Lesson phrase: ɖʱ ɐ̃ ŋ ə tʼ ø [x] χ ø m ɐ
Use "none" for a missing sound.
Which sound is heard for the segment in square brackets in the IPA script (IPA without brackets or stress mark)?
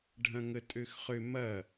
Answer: x